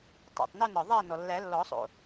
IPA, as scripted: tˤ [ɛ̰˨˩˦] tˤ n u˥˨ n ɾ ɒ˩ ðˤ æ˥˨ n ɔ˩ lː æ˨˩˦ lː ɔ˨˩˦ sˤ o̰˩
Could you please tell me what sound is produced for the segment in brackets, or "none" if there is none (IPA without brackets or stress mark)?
ɛ̰˩